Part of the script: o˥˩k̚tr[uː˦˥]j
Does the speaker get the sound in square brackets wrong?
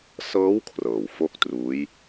no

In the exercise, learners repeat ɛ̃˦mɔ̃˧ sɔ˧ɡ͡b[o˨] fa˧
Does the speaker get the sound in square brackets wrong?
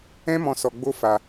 yes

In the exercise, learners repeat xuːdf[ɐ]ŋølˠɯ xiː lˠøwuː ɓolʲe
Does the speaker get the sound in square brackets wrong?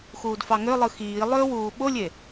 yes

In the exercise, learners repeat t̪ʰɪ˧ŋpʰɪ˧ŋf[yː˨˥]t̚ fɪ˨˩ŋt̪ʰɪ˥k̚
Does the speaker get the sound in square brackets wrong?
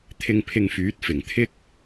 no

